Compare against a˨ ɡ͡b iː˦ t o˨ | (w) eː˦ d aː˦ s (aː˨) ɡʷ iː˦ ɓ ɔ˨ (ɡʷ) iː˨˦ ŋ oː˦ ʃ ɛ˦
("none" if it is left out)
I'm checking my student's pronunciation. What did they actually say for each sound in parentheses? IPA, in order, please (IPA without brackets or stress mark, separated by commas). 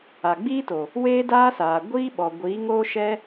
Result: w, aː˨, ɡʷ